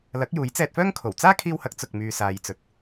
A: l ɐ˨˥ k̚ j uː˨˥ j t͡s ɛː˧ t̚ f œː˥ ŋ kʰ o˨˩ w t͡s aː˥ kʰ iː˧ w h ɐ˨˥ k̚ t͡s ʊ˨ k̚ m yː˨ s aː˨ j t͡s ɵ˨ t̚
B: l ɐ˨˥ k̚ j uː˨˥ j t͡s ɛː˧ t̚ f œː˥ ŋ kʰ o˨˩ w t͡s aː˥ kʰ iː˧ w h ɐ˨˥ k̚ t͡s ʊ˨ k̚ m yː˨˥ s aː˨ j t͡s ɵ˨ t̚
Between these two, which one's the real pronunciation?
A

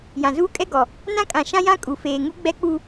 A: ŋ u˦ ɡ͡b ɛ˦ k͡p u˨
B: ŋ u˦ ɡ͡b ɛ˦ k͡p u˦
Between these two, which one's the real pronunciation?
B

